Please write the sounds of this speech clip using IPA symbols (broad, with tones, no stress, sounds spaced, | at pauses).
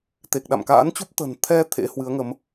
t̪ e˨˩ k̚ ɗ a̰˧˨ m k a̰ː˧˥ n t͡ɕ u˦˥ p̚ t̪ ə̤˨˩ n t̪ʰ ɛ˧ t̪ʰ ḛ˧˥ h w ɨ˨˦ ə̯ ŋ ə˨˦ m